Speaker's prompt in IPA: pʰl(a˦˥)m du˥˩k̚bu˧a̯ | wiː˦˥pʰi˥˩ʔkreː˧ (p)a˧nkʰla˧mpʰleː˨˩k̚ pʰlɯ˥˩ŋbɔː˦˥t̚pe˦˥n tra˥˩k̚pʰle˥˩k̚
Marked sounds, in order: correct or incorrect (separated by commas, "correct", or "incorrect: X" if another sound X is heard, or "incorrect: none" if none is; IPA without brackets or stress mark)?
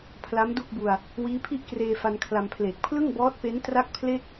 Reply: correct, incorrect: f